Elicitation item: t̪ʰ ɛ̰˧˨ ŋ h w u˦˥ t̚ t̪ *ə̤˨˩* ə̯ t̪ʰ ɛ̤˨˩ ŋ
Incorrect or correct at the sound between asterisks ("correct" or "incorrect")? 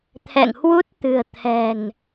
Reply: incorrect